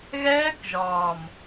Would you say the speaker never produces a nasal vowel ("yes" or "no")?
yes